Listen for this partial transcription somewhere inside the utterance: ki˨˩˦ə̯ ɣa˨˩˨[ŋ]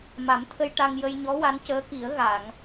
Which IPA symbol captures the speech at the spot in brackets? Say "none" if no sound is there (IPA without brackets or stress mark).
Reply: ŋ